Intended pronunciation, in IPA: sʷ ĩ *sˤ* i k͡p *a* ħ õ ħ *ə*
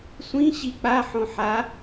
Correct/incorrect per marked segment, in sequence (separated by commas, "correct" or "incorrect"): incorrect, correct, incorrect